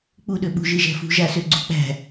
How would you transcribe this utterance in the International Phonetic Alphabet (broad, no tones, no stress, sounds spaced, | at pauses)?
k͡p u ɗ ø ɓ ṳ ʒ ɨ ʒ æ̤ f ṳ ʒ a s ø ɡ͡ǀ ṳ k͡p æ̤